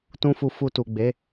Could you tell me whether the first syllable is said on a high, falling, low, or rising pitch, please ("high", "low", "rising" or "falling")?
high